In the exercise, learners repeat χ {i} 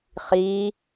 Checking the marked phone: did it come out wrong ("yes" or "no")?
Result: no